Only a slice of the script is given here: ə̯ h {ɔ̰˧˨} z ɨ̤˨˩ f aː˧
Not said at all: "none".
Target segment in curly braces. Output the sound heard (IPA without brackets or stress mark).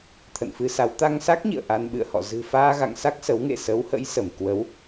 ɔ̰˧˨